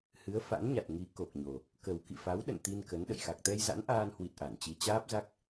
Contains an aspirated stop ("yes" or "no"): no